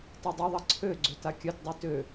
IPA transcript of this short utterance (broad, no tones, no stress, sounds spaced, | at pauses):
t a dˤ ʏ ðˤ ɐ ǀʰ ø ɡ͡ǀ ø t a kʲ œ t dˤ y t ø